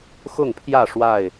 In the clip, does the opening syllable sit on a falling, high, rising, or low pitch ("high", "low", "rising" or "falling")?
falling